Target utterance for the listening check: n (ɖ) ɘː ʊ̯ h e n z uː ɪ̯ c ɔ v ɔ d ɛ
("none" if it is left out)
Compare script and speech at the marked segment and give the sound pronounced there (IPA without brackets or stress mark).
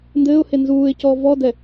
d